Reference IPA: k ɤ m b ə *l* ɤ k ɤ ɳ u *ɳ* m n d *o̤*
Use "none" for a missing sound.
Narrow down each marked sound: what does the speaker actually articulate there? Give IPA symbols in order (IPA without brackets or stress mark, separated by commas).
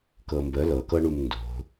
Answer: l, none, o̤